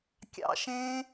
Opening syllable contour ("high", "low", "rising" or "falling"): high